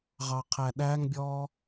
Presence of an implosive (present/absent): present